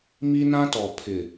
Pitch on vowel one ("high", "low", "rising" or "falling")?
high